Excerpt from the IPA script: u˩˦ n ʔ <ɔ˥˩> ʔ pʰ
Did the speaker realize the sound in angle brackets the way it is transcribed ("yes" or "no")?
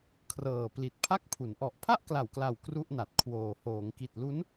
no